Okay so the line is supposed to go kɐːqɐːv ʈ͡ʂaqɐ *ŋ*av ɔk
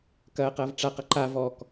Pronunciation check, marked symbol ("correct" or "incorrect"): incorrect